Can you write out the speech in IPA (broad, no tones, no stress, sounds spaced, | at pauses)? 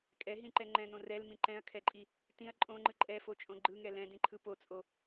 kʼ ɛ ɦ ĩ ǃ ɛ ŋ͡ǃ ɛ̃ n õ r ɛ l m ĩ ǃ ɛ̃ ɐ̯ kʰ ɛ ǃʼ i | t ĩ ɐ̯ ǃʼ õ ŋ͡ǃ ɯ ǃʼ ɛ f o t͡ʃʼ õ ɡ͡ǃ ɯ ŋ ɛ l ɛ̃ d ĩ ǃʰ ɯ p o t͡sʼ o